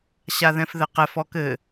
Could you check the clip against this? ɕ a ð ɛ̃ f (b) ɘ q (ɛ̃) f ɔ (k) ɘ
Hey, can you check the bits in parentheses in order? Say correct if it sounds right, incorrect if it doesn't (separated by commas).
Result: incorrect, incorrect, correct